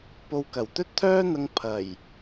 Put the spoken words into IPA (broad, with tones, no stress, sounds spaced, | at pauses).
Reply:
p o˧ w k ɐ˨˩ w t̪ ɵ˥ t̚ t̪ʰ œː˥ n̪ ɐ˧ ŋ pʰ ɐ˨˩ j